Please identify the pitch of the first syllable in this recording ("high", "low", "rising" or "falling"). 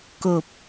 low